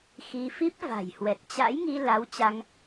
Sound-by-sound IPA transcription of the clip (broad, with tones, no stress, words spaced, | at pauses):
xi˧ fi˦˥p̚va̤˨˩jhwɛ˨˩t̚ t͡ɕa̰˧˥jŋi˧ la˨˦wt͡ɕa˧ŋ